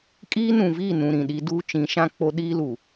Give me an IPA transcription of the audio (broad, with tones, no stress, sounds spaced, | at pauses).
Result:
kʼ iː˦ n ũ˨ v iː˦˨ n ũ˨ ɾ ĩ˨ ɗ i˦ d uː˦ t͡ʃ ĩ˨˦ ʃ ã˦ k͡p o˦ ɗ iː˦ l u˨